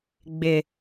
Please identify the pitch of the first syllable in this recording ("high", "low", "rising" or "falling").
low